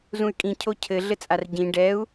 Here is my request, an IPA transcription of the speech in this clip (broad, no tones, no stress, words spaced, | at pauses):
zũy̯kʼĩ cʰocʰɘ ɮɘt͡sʼarɟĩ ɖɛu̯